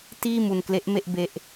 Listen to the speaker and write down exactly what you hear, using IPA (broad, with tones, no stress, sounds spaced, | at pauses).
t iː˥˩ m u˧ n k l e˦˥ ʔ m e˥˩ ʔ b e˦˥ ʔ